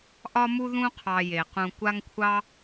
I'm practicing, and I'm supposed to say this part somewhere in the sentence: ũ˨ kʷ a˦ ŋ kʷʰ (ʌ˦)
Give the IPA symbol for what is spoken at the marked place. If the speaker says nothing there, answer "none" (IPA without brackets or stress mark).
ɑ˦